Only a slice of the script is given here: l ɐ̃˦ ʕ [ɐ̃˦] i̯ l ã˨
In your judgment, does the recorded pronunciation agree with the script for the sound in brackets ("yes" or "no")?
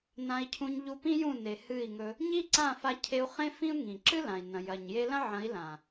no